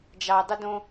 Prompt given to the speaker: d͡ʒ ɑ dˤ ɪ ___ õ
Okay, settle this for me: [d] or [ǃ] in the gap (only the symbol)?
d